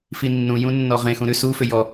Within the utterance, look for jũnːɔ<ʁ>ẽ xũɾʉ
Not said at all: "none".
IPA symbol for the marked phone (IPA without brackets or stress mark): ʁ